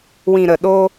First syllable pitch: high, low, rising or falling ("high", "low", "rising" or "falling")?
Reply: low